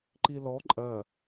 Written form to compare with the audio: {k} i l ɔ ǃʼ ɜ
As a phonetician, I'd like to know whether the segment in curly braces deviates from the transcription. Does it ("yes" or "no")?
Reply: yes